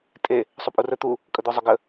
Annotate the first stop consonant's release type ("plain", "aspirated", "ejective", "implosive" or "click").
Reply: ejective